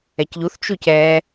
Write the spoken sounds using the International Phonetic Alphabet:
ɛcʎuθt͡ʃuc ɛ

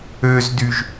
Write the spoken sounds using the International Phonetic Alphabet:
øzdyʒ

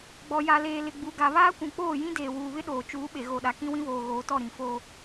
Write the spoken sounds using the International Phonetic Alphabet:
ɡ͡bɔ˨ja˨leː˨lɪ˨ ɡ͡bu˨ɡa˨ βaː˦kʷũ˨ k͡poː˦˨jĩ˦ deː˨wuː˨βɪ˦ ɗoː˨t͡ʃuː˨˦ɓe˨ ɣo˨ɗa˨ kĩ˦wĩ˦βoː˨ ɣoː˨tɔ˦˨ ɾĩ˨foː˦

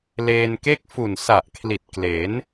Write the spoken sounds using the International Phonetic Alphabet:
leː˧nke˥˩k̚ fu˨˩nsa˨˩ʔkʰli˨˩t̚ kle˩˦n

